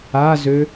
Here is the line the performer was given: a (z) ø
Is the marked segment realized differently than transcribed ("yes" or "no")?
no